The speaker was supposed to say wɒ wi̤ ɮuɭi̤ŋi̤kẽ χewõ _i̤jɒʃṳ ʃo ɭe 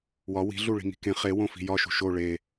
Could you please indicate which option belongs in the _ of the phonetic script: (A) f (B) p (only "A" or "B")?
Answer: A